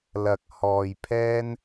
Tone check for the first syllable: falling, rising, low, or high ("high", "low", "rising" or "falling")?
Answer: low